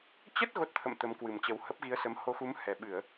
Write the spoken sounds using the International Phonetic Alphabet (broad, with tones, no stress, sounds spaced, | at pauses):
t͡ɕ ə˦˥ t̚ ɣ o˦˥ t̚ t̪ʰ ə̰˧˨ m t̪ ə˨˦ m k w ɨ˨˩ m t͡ɕ ə˨˦ w h ə˦˥ p̚ ɣ i˨˦ ə̯ s ə˨˦ m h o˧ x u˨˦ m h ɛ˨˩ ɓ ɨ˧˩˨ ə̯